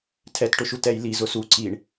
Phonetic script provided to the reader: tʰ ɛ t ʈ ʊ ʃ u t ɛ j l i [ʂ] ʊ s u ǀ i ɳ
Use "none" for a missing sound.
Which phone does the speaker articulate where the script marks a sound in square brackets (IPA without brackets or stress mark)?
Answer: z